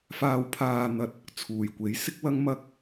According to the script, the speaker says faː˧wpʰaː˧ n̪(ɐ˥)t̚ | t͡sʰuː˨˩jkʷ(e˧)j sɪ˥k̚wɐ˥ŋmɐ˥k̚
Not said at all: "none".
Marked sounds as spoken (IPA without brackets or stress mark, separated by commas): ɐ˧, e˨˥